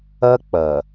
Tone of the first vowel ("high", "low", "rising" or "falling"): high